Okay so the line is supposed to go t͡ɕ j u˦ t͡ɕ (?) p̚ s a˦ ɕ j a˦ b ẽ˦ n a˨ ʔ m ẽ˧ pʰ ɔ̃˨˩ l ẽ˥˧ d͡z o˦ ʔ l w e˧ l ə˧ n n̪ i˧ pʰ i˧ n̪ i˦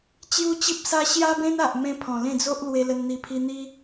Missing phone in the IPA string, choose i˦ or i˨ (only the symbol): i˦